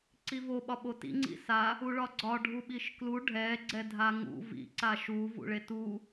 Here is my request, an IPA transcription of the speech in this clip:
ǀ i v o ɓ ɒ ɓ o t ḭ ŋ͡ǀ ḭ s a | u ɭ ɒ ɡ͡ǀ ɒ ɖʱ u ɓ i ʃ k l u ɖʱ ɛ ɡ͡ǀ ɛ dʱ a ŋ ṵ v ḭ ǀ a ʃ u v ṵ ɭ e t u

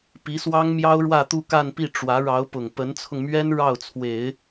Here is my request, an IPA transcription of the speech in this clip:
p i˧˥ s w ɑ˥ ŋ m j ɑ˥ ʊ̯ ɻ w ä˥˧ t̪ u˥˧ k a˥˧ n p i˥˩ ʈ͡ʂ w ä˧˥ ɻ ɑ˧˥ ʊ̯ p ʊ˨˩ ŋ p ə˧˥ n t͡sʰ ʊ˧ ŋ m ɥ ɛ˥ n ɻ ɑ˥˩ ʊ̯ t͡sʰ w e˨˩˦ ɪ̯

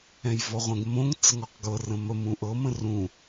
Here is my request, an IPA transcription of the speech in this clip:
ɛ̃ j v ɔ ʁʷ ɛ̃ ɡ m õ ŋ t͡s ə ŋ ɔ q ɡ ɤ r ə̃ m ə m ũ ʔ ɤ m ə̃ r ũ

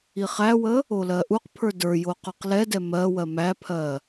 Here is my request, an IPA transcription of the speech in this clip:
i χ æ w ə | o l ɜ ʔ u q pʰ ə˞ d ə˞ j o q ə˞ q l ɛ d ɛ m ɜ w ɜ m æ pʰ ɜ

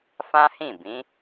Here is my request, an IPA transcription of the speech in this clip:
f ã˦ h ĩ˦˨ b ĩ˨˦

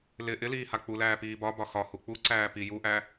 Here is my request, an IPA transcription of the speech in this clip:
l ɪ ʔ ɪ l iː h a k͡p u l æː p iː b ɒ b ɒ x ɒ h u k͡p u ǀ æː p i j u ʔ æ

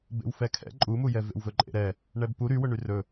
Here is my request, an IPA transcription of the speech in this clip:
b ḛ w f ɛ kʰ ɛ̰ ǃʼ u m u j ɛ v ḛ w v ɵ ǃʼ ḛ ɾ ɛ | ɳ ɛ b p u ɾ y w ɵ ɳ y r ɵ

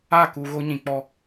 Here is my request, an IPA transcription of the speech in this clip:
a˦˨ k u˨ ɣ o˦ ɲ ĩ˨ k͡p ɔ˦

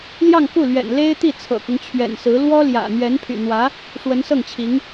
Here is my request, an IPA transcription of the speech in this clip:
l j ɑ˥˧ ŋ k u˥˩ l ɥ ɛ̰˨˩ n l e˥ ɪ̯ t̪ i˥˩ t͡sʰ ɤ̰˨˩ k ʊ˦ ŋ t͡ɕʰ ɥ ɛ̰˨˩ n s ɹ̩˧˥ l w ɔ˥ l j ä̰˨˩ n̪ ɥ ɛ˧˥ n pʰ y̰˨˩ n̪ w ä˧˥ | ʂ w ə˧˥ n s ɤ˥˩ ŋ t͡ɕʰ i˧˥ ŋ

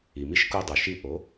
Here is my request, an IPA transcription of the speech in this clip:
i˩ m i˥˧ ʃ k u˥˧ dˤ u˩ ʃ i˥˧ ʔ o˩˥

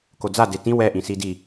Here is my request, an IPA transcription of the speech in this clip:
k o d͡z a d e t ĩ w ɛ ʔ ĩ s i d i

